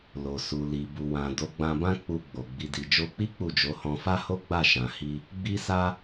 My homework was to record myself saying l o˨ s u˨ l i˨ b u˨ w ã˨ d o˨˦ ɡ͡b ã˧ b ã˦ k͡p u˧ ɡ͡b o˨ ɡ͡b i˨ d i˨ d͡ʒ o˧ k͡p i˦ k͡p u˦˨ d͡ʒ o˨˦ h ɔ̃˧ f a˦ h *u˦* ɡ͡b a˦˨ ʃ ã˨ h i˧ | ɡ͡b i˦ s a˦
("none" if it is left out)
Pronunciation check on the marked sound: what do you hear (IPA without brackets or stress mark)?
o˦